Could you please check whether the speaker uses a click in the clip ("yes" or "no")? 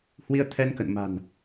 no